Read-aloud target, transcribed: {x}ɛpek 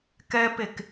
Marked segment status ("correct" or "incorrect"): incorrect